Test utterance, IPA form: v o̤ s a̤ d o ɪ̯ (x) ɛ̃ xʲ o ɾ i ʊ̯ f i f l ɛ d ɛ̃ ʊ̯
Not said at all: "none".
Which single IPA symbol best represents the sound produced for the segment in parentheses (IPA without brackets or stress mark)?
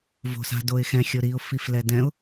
x